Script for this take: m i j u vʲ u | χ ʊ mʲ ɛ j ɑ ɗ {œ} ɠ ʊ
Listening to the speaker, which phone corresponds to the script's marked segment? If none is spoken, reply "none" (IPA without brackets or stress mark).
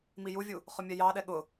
ɛ